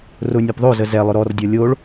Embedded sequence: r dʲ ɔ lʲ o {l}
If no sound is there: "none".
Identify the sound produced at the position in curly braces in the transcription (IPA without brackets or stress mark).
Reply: ɭ